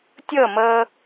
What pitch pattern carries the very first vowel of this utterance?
falling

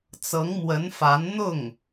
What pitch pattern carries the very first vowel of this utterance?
rising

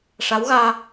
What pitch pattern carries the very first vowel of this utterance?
rising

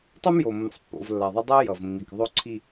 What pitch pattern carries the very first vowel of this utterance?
high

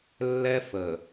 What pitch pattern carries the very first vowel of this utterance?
high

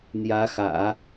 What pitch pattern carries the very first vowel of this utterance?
rising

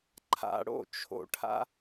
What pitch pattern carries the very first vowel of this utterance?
low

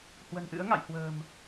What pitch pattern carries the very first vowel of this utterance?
low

